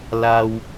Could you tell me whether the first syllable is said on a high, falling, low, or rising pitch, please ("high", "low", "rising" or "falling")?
low